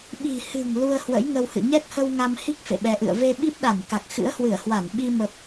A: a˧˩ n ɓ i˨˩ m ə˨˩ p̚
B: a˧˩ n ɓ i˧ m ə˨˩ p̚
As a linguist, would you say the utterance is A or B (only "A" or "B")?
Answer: B